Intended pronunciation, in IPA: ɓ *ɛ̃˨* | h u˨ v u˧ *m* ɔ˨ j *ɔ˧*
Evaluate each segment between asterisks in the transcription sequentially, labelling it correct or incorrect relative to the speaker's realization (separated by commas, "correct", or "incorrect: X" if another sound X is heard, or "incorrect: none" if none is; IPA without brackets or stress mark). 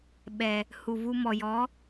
incorrect: ɛ˨, correct, incorrect: ɔ˨˦